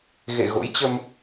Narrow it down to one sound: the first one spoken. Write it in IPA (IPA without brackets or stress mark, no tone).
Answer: ɣ